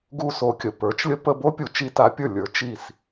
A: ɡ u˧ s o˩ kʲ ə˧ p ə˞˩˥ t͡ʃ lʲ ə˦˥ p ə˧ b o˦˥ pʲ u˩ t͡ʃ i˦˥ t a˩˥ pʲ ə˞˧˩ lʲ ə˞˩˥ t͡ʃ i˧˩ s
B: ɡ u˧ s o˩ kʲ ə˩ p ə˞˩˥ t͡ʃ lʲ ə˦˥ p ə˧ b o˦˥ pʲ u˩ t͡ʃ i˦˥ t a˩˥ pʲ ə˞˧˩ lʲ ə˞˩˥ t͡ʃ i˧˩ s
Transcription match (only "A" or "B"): B